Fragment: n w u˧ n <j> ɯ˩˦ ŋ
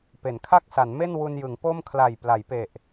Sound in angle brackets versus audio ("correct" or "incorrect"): correct